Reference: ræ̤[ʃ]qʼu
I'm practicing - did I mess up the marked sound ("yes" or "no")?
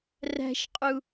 no